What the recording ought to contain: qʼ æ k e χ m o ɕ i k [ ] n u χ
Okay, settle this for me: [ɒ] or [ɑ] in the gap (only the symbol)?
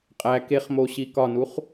ɒ